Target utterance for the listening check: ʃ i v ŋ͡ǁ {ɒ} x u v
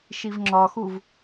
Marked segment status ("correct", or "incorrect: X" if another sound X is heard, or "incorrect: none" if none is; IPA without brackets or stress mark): correct